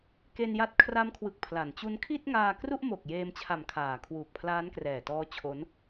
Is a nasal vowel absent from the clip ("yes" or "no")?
yes